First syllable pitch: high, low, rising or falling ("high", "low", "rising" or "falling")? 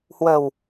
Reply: low